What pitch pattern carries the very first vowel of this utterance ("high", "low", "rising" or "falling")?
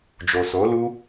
low